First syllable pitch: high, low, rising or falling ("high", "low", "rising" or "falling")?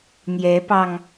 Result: rising